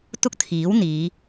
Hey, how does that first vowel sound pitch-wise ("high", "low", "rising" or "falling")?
high